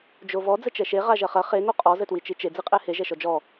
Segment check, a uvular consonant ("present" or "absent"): present